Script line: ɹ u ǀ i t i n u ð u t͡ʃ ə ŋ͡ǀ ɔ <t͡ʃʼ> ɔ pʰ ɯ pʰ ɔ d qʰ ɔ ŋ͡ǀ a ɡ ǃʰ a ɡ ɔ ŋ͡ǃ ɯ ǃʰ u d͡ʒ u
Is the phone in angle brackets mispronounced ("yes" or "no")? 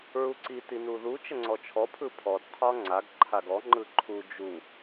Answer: yes